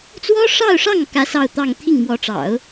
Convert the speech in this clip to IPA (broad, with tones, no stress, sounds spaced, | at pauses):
t͡s w ɔ˥ ʂ ɑ˥˧ ʊ̯ ʂ ɑ˥˩ ŋ k ä˥ s ɑ˥˧ ʊ̯ t̪ ɑ˥˧ ŋ t̪ʰ i˥˩ ŋ m w ɔ˧˥ ʈ͡ʂ ɑ̰˨˩˦ ʊ̯